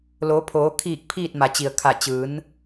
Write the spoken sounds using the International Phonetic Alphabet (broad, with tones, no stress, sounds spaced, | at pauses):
l oː˩˧ pʰ oː˩˧ kʰ iː˧˩ k̚ pʰ iː˥˨ t̚ m a˩ t͡ɕ i˩ ə̯ kʰ a˧˩ t͡ɕ ɯː˩˧ n